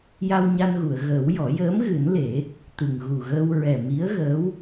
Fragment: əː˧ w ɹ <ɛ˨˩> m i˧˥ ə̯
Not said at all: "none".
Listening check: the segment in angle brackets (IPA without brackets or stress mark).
ɛ˨˩